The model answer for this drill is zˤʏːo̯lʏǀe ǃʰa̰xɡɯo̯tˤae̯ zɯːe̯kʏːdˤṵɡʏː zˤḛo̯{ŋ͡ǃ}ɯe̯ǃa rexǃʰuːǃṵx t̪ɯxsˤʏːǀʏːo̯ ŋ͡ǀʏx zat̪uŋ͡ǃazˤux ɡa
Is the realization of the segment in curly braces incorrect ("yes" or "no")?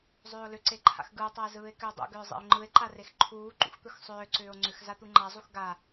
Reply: no